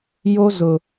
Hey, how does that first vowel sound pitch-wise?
high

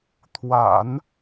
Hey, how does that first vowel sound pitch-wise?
low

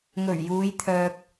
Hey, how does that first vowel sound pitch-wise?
low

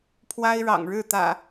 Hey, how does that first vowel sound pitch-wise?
high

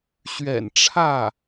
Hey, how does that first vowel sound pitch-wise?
low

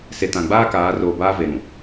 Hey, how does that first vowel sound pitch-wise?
low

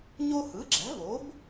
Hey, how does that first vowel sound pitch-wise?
high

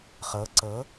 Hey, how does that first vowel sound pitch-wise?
rising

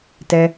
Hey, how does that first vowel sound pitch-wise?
high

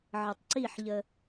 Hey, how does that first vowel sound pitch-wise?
low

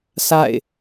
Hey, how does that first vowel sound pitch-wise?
falling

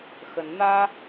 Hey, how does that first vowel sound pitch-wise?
rising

